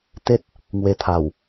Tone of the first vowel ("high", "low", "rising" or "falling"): high